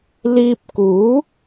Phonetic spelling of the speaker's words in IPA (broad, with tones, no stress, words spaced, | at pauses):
liː˧p̚kuː˨˥